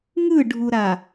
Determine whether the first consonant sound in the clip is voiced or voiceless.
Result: voiced